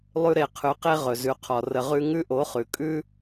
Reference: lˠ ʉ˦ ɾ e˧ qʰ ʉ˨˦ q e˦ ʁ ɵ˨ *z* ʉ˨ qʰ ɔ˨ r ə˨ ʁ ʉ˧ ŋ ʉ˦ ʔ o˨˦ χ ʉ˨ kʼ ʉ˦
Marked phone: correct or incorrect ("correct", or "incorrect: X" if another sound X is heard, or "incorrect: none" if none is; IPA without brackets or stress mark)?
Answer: correct